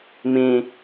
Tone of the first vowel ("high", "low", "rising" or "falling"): low